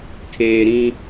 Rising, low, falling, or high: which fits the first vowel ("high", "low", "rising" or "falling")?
low